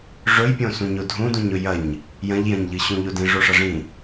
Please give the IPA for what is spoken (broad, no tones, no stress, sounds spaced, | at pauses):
ʐ ɵ j pʲ õ s ũ ɲ o dʱ ũ d ũ ɲ ɵ j ɐ ɲ | j ɐ̃ ʎ j ɐ̃ ɲ ʎ ɨ ɕ ũ ʎ o d ĩ ʐ o ʂ ɐ ʐ ĩ